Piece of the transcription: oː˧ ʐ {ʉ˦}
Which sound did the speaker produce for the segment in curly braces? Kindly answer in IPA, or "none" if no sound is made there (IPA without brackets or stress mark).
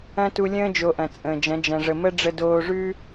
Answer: ʉ˦